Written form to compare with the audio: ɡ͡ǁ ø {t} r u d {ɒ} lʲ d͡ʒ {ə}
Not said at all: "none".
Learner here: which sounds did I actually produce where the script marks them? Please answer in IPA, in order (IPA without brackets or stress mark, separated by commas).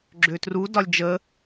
t, ɒ, ə